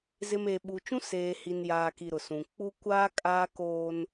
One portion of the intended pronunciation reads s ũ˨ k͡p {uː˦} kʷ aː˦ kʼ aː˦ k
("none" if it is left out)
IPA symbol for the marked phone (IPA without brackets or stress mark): u˦